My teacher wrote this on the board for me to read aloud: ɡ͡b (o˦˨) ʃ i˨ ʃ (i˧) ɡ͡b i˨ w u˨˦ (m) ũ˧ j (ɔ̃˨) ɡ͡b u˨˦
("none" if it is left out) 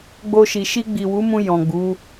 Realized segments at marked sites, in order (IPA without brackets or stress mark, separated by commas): o˧, i˧, m, ɔ̃˨